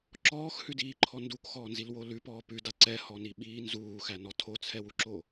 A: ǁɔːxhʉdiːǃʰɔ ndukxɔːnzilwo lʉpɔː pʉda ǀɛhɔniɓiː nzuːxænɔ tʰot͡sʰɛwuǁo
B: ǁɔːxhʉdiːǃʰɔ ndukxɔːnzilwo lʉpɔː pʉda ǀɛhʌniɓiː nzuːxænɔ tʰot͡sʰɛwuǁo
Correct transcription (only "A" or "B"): A